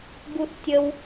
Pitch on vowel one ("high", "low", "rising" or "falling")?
high